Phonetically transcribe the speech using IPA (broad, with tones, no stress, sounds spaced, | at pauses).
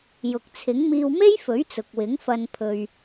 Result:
j ʊ˨ k̚ t͡sʰ ɪ˨˥ ŋ m iː˧ w m e˥ j f ɵ˨˥ ɥ t͡s ʊ˨ k̚ w ɪ˨˥ ŋ f ɐ˧ n pʰ ɵ˨ ɥ